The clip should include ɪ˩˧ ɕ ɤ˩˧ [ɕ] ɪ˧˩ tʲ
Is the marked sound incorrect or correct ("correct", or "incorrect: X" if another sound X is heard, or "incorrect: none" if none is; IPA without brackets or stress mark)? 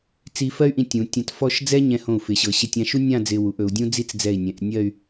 correct